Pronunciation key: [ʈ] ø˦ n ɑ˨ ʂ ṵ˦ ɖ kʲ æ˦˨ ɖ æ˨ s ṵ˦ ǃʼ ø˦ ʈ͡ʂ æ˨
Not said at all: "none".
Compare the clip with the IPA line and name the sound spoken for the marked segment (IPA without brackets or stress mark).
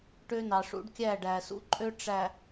ʈ